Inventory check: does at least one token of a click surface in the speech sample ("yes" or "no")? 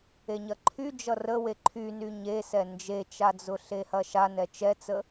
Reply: yes